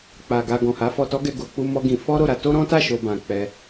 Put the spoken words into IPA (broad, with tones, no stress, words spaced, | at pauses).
k͡pa˨ɡa˧ ɡɔ̃˨ha˨˦fɔ˧tɔ˦ ɡɛ˧ɡo˨k͡pu˧ mɔ˦ɡĩ˧ fɔ˦ɾo˦˨ɾa˧ to˦ɾɔ̃˦ta˦˨ ʃo˧bã˨ k͡pɛ˧